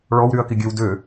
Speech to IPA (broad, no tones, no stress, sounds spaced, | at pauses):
ɭ ɔ w ɾ y ɐ̯ k i ɡʲ ø w d ø